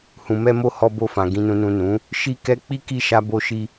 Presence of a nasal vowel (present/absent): present